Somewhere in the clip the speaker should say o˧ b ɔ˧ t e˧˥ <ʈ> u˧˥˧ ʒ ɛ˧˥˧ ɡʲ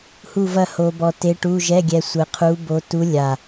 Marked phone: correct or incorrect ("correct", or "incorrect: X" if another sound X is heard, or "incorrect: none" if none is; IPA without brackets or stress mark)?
correct